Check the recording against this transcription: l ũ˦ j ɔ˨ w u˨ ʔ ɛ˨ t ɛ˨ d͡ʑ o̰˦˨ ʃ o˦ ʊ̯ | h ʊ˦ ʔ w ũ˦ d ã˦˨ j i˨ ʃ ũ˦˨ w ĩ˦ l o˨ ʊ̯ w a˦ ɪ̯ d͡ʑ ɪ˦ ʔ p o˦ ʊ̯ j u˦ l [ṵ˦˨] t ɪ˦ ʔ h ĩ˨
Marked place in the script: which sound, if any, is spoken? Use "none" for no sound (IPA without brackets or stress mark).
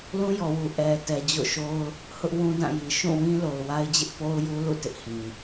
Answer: ṵ˦˨